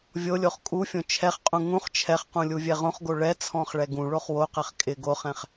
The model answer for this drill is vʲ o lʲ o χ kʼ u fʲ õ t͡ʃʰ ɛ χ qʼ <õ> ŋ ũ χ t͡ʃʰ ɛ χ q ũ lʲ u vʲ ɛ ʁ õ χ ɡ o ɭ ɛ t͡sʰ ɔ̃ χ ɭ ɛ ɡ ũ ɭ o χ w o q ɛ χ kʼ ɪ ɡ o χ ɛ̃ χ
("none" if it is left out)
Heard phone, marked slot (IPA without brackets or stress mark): ũ